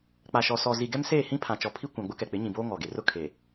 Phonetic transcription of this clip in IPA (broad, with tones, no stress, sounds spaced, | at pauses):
k͡p a˨ ʃ ɔ˨ s ɔ˨ z i˨ ɡ ɛ˦ m s eː˦˨ h ĩ˦ pʰ ã˨ t͡ʃ ɔ˨ pʰ i˦ kʷ ã˨ ɡ͡b ʊ˦ k ɛ˨ k͡p ɪ˨˦ ɲ ĩ˨ b oː˦ ŋ ɔ˨ ɡ e˨ r ʊ˦ kʰ e˨